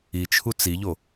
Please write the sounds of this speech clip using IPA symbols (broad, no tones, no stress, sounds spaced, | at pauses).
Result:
i t͡ʃʰ u t͡s i ʎ o